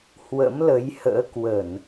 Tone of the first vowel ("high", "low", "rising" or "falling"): rising